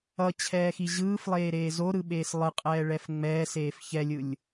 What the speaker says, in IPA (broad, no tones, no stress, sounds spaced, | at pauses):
ʌ t͡ɕʰ ɛː x i ʑ ɯː f lˠ eː ɾ eː z o ɾ ɯ ɓ eː s lˠ ɯ qʼ ɛː ɭ ɛ f ŋ͡m ɛː s eː f ç ɛ lʲ ɯ lʲ